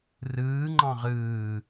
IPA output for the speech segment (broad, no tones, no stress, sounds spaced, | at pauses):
r ɯː ŋ͡ǃ ɑ̃ ʁ ɯː